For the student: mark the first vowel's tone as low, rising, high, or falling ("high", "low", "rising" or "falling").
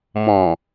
low